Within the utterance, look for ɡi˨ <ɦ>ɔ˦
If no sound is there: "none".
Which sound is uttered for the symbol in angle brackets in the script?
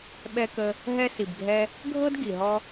ɦ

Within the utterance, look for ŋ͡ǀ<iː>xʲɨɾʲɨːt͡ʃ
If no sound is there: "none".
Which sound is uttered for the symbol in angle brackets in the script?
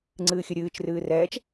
ɨː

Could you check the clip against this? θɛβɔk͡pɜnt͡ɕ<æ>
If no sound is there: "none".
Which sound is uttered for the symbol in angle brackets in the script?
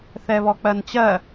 ɜ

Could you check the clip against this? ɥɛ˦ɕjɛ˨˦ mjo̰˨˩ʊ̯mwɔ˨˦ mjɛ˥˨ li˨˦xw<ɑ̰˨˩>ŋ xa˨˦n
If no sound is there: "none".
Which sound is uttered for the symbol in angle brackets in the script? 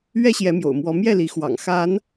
ɑ̰˨˩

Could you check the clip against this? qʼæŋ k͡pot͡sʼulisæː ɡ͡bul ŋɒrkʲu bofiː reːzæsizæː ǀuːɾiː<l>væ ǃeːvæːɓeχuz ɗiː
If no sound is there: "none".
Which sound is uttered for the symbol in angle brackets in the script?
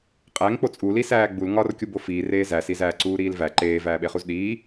l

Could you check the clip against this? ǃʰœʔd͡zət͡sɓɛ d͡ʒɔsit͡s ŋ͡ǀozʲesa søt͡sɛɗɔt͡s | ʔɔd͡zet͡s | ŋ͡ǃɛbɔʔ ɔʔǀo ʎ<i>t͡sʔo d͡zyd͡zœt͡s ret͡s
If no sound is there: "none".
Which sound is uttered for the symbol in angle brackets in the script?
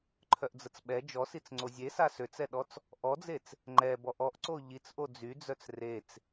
i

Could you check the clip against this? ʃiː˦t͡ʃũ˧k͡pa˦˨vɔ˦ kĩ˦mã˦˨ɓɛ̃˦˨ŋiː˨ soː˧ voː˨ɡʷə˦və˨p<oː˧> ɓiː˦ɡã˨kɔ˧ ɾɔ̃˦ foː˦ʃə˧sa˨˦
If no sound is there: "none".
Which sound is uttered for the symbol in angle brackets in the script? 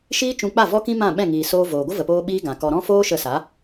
oː˧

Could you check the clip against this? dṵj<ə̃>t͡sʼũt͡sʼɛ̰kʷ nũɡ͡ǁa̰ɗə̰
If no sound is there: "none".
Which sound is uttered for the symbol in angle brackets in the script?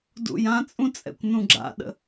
ã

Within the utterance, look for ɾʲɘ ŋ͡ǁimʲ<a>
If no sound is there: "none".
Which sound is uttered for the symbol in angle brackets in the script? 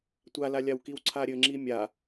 a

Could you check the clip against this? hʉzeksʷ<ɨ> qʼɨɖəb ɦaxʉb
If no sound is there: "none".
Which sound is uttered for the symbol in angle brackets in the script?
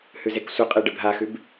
ə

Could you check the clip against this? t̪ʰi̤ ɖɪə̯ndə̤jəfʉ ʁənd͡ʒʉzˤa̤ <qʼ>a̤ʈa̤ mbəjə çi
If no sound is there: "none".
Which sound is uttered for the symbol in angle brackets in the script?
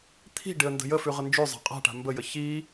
qʼ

